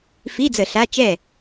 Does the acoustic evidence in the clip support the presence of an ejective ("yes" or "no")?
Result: no